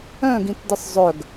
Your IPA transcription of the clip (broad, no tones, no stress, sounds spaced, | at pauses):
œ̃ ɡ ĩ t d ɪ sˤ zˤ œ ɡ